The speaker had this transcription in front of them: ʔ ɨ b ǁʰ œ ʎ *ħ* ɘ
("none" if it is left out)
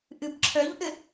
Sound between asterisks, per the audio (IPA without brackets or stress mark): ʔ